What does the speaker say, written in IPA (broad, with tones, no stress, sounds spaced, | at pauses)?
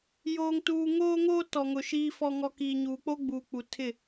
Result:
j oː˨ ŋ t uː˨ ŋ oː˦ ŋ oː˦ t ɔ˨ ŋ ʊ˨ ʃ iː˦ f ɔ˦ ŋ ɔ˦ k iː˨ ɲ uː˨ k͡p o˦ ɡ͡b uː˨ k͡p u˨ tʰ ɪ˦˨